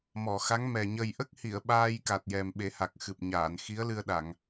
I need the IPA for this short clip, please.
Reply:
m ɔ˨˩˨ x a˧˥ ŋ m ɛ˨˩ ɲ ə˨˩ j ʔ ə˦˥ k̚ h i˨˩˨ ə̯ ɓ aː˧ j k a˨˩ t̚ j ɛ˨˩ m ɓ e˨˩˦ h a˨˩ k̚ x ɨ˨˩ p̚ ɲ aː˨˩˨ n x i˧˥ ə̯ l ɨ˧ ə̯ ɗ a˨˩˨ ŋ

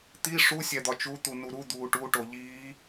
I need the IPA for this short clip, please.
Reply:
t̪ i ʂ u sʲ æ d̪ ɒ t͡ʃ u t̪ u n u ɾ u d̪ uː ʈ u ʈ o ʎ iː

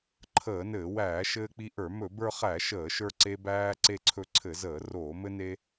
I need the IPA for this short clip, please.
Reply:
ǃʰ əː˧˩˧ n ɘː˧˩˧ w æː˧˩˧ ʃ ɘː˧ k͡p i˧ ʔ ə˞˧˩˧ m ɵ˧˩˧ b ə˞˧ χ æ˧˩˧ ʃ əː˧˩˧ ʃ ə˞˧ ǀ e˧ b æː˧ ǀ e˧ ǀʰ ɵ˧ ǀʰ ɘ˧˩˧ z əː˧˩˧ r oː˧˩˧ m ɘ˧ n e˧

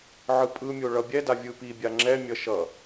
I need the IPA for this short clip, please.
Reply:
ʕ ɯ pʼ ɯ mʲ o ɭ ʌ bʲ ɛ d a vʲ ɯ p i bʲ a ŋ͡ǁ ɛ mʲ ʌ ʃ ʌ

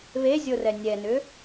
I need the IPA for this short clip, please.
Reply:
β e zʲ o r ɛ nʲ ɛ n ʏ

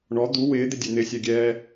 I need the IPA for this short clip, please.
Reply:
ɳ ɔ d̪ u w ɪː d̪ ɪ dʲ e n̪ ɪ sʲ ɛ ɡʲ ɛː

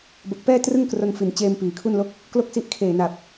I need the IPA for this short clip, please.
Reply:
b o˨˩ k̚ p ɛː˥˩ t r ɯ˥˩ ŋ k r o˧ n f i˨˩ n t͡ɕ eː˧ m p iː˩˦ kʰ u˥˩ n l o˦˥ k̚ | k l o˥˩ k̚ s i˦˥ ʔ kʰ eː˨˩ n a˨˩ p̚

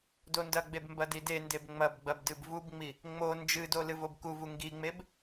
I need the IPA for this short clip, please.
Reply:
d o n d ɐ ɡ͡b e b m b ɐ d i d e n d e b ŋ͡m ɐ b ɡ͡b ɐ b d ɨ b v u b ŋ͡m i | ŋ͡m o n d͡ʒ ɨ d o l ɨ v o b k u v u ŋ ɡ i ŋ͡m e b

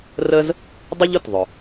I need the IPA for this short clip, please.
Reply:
r ə˥ z | dˤ ʊ˥ ʎ ʊ˩ t ðˤ ʊ˩

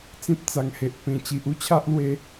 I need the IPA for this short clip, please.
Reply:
t͡s ĩ˦ p̚ t͡s a˨˩ ŋ h e˨ ʔ p ẽ˨˩ t͡ɕ i˨ ʔ u˦ t͡ɕʰ a˦ ʔ l w e˧

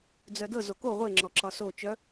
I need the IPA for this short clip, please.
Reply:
d͡z œ d ɤ z o k o ʁʷ e ŋ͡ǁ ɔ ǁ ɒ s o t͡ʃ œ

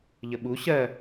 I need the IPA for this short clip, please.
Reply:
ʎ ə ɓ u ɕ ɜ

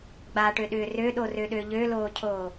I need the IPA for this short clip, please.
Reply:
ɡ͡b a ʈ ø ɗ ʏː r ø ɗ o r ø ɗ ø ʎ ø l oː cʰ oː

